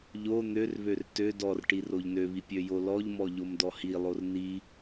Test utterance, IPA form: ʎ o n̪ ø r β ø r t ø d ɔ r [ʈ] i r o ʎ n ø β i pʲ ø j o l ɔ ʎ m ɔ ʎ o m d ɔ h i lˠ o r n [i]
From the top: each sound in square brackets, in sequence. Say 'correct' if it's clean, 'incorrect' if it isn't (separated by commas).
correct, correct